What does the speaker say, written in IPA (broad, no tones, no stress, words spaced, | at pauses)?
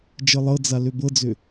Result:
d͡ʒɤlˠɤd͡za løbɤd͡zø